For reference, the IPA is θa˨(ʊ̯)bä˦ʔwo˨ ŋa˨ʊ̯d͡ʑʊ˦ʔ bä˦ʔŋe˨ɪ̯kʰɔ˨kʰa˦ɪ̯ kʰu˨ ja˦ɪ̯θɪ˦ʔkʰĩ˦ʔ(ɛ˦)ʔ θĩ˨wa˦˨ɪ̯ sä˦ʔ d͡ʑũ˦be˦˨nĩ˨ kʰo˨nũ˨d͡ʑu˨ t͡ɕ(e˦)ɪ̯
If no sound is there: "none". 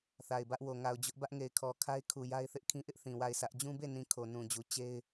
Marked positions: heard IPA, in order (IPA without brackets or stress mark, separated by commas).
ɪ̯, ɪ˦, e˦